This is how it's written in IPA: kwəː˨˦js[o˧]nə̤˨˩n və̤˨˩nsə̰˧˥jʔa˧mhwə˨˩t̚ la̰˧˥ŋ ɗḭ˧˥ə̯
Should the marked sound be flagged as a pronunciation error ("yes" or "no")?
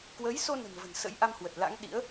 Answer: no